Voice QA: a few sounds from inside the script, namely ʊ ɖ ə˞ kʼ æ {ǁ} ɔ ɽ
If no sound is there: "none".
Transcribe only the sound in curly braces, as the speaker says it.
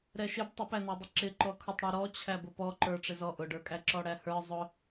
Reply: ǁ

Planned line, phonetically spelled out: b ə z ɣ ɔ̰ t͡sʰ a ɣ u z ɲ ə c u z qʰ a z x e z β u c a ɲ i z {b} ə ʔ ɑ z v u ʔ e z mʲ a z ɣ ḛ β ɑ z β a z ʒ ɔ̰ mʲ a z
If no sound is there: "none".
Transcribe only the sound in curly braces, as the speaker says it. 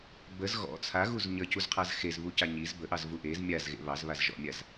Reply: b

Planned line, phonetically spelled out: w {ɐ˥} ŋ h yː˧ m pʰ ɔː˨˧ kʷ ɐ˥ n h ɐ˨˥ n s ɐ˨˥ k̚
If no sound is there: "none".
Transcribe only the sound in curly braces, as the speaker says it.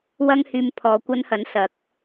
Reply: ɐ˥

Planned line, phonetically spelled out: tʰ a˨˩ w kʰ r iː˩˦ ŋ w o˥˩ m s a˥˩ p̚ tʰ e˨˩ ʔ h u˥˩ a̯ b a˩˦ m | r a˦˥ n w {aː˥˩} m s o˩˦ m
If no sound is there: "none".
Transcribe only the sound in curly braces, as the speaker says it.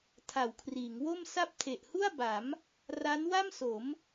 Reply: a˥˩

